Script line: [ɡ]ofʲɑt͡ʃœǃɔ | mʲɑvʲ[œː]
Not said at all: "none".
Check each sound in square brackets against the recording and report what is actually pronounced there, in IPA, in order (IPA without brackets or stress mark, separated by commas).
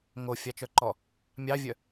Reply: ŋ, œ